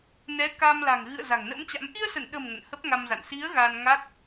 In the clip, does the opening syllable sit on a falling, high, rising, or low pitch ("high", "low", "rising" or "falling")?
rising